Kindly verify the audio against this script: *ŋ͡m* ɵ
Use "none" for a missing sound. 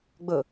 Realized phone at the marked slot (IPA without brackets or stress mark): ɡ͡b